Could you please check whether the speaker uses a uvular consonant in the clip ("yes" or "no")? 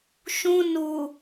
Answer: no